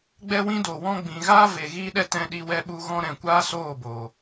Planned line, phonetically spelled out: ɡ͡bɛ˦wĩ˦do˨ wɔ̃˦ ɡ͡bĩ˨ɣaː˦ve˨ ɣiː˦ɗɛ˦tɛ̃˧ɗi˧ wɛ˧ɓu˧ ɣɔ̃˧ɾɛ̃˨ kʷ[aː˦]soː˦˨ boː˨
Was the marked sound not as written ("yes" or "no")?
no